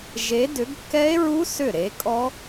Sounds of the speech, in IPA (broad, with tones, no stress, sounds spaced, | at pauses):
ʒ e˨˦ d ʏ˨˦ ɡ kː ɛ˦˥ e̯ ɹ u˦˥ s ʏ˥˩ ɾ e˨˦ kʼ ɔ˦˥